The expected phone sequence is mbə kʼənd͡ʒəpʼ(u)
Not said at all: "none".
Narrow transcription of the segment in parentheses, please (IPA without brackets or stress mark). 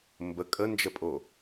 o